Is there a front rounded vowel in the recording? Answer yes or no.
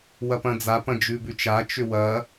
yes